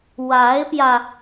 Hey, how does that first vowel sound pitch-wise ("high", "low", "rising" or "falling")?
rising